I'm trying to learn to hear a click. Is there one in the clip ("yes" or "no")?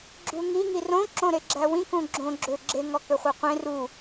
yes